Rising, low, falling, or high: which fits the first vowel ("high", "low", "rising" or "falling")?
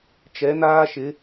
rising